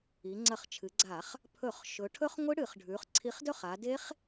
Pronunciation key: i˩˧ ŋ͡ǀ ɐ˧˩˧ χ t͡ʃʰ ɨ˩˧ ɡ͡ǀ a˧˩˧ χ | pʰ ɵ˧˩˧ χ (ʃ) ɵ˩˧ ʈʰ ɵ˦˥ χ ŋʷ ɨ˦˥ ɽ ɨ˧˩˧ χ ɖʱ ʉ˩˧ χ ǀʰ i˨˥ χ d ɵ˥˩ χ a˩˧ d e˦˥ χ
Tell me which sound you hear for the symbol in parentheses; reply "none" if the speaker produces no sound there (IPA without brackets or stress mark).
ʃ